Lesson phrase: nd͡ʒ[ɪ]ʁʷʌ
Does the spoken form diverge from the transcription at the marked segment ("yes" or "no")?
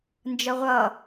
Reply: yes